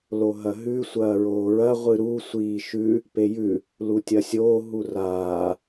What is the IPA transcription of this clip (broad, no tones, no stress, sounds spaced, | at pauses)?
l o ɦ ɐ ɦ ʉ sʷ ɐː ɹ oː ɹ ɐ ʁʷ ɨ ɾ u sʷ iː ʃ ʉ | p e j ʉ | l u tʲ ɐ sʲ oː ɦ u r aː